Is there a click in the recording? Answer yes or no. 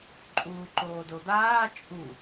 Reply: yes